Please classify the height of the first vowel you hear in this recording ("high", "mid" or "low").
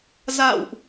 low